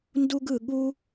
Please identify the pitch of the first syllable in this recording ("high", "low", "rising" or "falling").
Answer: high